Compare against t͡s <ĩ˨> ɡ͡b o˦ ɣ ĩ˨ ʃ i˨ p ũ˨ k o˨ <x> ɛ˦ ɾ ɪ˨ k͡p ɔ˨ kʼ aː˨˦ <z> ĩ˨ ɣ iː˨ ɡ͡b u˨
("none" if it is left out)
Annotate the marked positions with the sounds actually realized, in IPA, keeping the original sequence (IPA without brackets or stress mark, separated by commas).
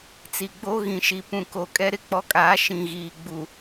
i˨, kʼ, ʃ